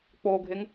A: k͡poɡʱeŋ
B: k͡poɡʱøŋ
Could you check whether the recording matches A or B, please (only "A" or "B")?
A